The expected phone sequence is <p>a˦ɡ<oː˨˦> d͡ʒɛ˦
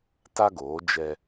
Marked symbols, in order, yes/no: no, yes

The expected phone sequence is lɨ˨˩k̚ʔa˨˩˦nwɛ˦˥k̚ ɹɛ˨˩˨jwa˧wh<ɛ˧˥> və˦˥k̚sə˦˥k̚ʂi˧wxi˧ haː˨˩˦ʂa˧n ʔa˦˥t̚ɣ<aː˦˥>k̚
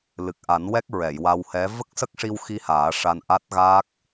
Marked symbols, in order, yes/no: yes, yes

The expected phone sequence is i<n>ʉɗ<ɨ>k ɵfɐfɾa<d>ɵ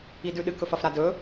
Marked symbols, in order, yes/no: no, yes, yes

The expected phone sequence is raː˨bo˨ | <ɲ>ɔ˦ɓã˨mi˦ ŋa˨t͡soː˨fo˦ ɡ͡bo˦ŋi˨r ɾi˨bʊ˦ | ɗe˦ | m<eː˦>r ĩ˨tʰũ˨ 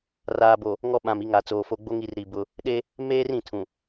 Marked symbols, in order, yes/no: no, yes

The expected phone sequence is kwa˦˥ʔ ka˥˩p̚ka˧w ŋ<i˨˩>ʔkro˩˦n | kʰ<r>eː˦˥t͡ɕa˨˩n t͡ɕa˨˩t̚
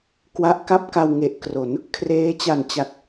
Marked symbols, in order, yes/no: no, yes

